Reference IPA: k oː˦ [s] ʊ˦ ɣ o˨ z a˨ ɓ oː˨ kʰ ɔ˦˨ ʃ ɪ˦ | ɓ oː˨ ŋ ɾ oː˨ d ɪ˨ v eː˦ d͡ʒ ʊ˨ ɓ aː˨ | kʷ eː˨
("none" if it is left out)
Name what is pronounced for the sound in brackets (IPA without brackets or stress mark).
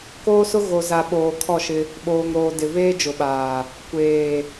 s